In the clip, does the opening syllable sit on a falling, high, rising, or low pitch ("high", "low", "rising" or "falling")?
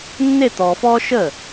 falling